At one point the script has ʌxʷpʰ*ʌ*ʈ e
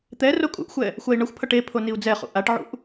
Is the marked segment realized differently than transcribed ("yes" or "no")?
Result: no